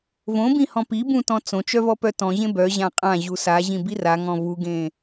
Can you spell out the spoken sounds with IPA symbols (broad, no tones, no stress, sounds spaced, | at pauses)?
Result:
v õ b ĩ h ɔ̃ p i b ũ t ɔ̃ t͡s õ t͡ʃ œ v ɔ p œ t ɔ̃ ʑ ẽ b œ ʑ ã qʼ ã ʑ u s a ʑ ĩ b i r a ŋ ɔ̃ v u ɡ ẽ